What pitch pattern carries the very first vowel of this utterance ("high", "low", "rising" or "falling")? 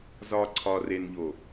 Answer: low